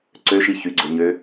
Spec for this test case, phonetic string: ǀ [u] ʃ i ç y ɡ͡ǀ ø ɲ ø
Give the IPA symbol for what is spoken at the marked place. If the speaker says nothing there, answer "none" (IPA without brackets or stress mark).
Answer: ø